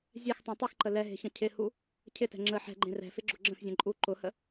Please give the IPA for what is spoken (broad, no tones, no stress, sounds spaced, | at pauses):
zʲ ɛ x tˤ ũ tˤ ɪ x ǃ ə l ɛ ɦ e̤ ç ə̃ cʰ ɪ h u | cʰ ɪ t ɛ̤ ŋ͡ǁ ə ħ ɛ̤ ɡ͡ǃ ẽ r ɛ̤ f ɪ ɡ͡ǁ ʊ ɡ͡ǁ ə̃ x zʲ ɛ̃ ǃʼ u ǃ ʊ h ə